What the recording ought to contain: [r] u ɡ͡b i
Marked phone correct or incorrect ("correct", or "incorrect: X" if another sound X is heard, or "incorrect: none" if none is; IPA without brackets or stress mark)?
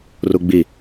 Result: correct